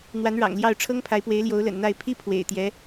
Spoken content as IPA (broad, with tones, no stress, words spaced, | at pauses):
n̪wa˧˥nɻɑ̰˨˩ŋljɑ˥˩ʊ̯ʈ͡ʂʰɤ˥ŋ pʰa˧˥ɪ̯pwe˧˥ɪ̯ ljo˧˥ʊ̯lə̰˨˩nn̪a˥˩ɪ̯ pʰi˥ pʰwḛ˨˩ɪ̯ t̪jɛ˧˥